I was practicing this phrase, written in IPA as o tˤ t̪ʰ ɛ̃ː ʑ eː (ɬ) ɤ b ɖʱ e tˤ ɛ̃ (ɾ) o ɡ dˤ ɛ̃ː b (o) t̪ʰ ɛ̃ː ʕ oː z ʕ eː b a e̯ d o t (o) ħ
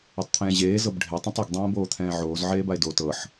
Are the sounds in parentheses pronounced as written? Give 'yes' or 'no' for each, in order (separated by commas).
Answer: no, no, no, no